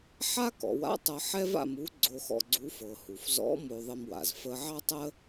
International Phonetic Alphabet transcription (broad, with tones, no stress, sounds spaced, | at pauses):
ħ a˥ k ɔ̰˩˧ w a̰˥ tˤ ɤ˧ ħ ɛ˥ v a̰˧ m u˧˥ ɡ͡ǀ o˧ x ɔ̰˧ ɡ͡ǀ u˧˥ f ɤ˩ h u˩ f z ɔ̰˧˥ m o˧ ðˤ ə˧ m w a̰˩ z f ə˧ ʕ ɑ˥ tˤ ə˥